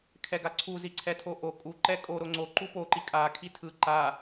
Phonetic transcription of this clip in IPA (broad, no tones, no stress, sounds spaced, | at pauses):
kʰ ɛ ɡ a ǀʰ u z i ǀʰ ɛ tʰ o ʔ o kʼ u ǃ ɛ kʼ o ɾ o ŋ͡ǀ o ǃ u p o ǃ i kʼ a kʰ i tʰ ɯ ǃ a